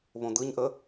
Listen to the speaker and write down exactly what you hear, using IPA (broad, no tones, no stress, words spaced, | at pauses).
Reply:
βõd̪ɯɲʔə